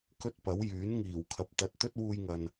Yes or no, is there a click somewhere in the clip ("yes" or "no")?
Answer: no